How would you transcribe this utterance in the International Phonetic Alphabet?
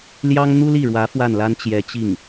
l j ɑ˥ ŋ n̪ u˥ l i˥˩ ɻ w ä˧˥ f w a˥˩ n l a˥ n t͡ɕ j ɛ˧˥ t͡ɕ i˥˩ ŋ

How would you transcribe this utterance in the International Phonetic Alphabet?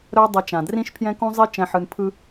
ɾ œ˦ dˤ ʌ˧ t͡ʃ ã˨ d r ĩ˦ ʃ pʰ j ɛ̃˦ k ũ˦ zˤ i˦ t͡ʃ ɛ̃˨ ħ ɯ˨ n pʰ ɯ˧

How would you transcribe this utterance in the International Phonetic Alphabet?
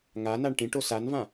ŋ a n a ɳ ʈ ĩ ʈ o s a n v ã

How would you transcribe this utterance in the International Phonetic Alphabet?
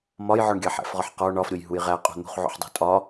m ɒ j ʕ ɔ ɳ ɡʲ ɑ ħ æ̰ f ʁ ɒ ħ q ɔ ɳ ɒ f ɾʲ o j ɦ u j ʁ æ qʼ ṳ n̪ ṳ χ ʕ o̰ ħ dˤ o̤ tʼ ɒ

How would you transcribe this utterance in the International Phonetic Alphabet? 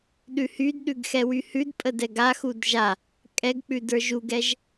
ɗ ʉ h y d ɗ ʉ ɡ x ɛ w y h ʉ d pʼ ə d ɛ ɡ a x u d ʒ a | kʼ ɛ ɡ k͡p ʉ d ə˞ ʒ u ɡ ɛ ʒ

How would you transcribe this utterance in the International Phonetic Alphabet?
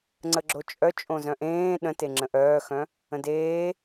ŋ͡ǀ ə ɡ͡ǁ o t͡ʃʼ œ t͡ʃʼ õ z œ̃ ʔ ẽː ɗ ə̃ t e ŋ͡ǁ ə̃ ʔ œː x œ̃ | ə̃ d eː

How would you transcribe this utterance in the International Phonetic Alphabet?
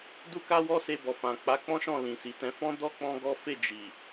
d u˦ k a˦ w ɔ˦ s e˧ b ɔ˨ f ã˨ k͡p a˨˦ k͡p ɔ̃˦ ʃ ɔ̃˦˨ l ĩ˨ s i˨ t ɛ̃˧ f ɔ̃˦ d ɔ˦ k͡p ɔ̃˦ ɡ ɔ˦ f e˦˨ d͡ʒ i˨

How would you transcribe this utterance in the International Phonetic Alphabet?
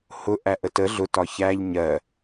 h ʊ ʔ æ ʔ ə t ə ɮ ʊ t ɒ ç æ ʎ ɲ ɜ

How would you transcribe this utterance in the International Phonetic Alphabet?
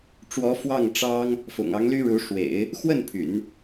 ʈ͡ʂ w ɔ˧˥ f w ɑ˥˩ ŋ ʈ͡ʂ ɑ˥ ŋ | f ʊ̰˨˩ ŋ ɑ˧˥ ŋ l y˥ ɻ u˧˥ ʂ w ḛ˨˩˦ ɪ̯ | x w ə˥˩ n pʰ y̰˨˩˦ n

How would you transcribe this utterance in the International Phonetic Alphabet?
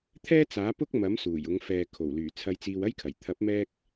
t̪ʰ ɛː˥ t͡s aː˨˥ p ʊ˥ k̚ m ɐ˨˥ m s uː˨˩ j ʊ˨˧ ŋ f ɛː˨ kʰ o˨˩ w l yː˨˩ t͡sʰ ɐ˧ j t͡s iː˧ w ɐ˥ j kʰ ɐ˨˩ j t̪ʰ ɐ˨˥ p̚ m ɛː˧ k̚

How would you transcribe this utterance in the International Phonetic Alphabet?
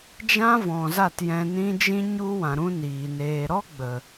d͡ʒ ã˦ v ɔ̃˨ z a˦˨ t j ɛ̃˧ n ĩ˦ d͡ʒ ĩ˦ ɲ u˦ w ã˨ ɾ ũ˦ n iː˨ n eː˨ ɾ ɔ˦ ɡ͡b ə˨

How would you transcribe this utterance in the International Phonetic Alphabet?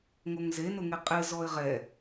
ŋ o ŋ z e n ʊ ŋ e qʼ ɪ z ɔ ɪ̯ ʁ ɛ

